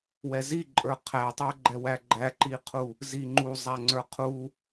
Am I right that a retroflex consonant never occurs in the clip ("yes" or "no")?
yes